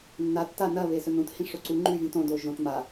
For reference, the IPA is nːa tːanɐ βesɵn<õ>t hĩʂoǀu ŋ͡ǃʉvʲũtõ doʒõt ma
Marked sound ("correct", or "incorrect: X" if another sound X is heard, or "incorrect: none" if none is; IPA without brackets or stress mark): incorrect: ũ